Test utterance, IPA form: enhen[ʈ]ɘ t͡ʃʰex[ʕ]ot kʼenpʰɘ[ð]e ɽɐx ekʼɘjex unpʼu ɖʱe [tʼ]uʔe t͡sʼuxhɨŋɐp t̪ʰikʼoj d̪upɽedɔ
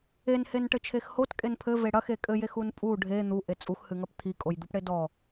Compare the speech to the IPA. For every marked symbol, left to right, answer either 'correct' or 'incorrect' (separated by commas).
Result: correct, incorrect, incorrect, incorrect